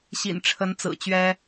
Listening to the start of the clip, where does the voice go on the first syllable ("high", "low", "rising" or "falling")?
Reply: low